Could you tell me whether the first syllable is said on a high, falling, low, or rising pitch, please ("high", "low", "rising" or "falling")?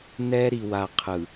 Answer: high